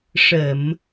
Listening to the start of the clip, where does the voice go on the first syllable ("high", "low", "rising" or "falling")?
low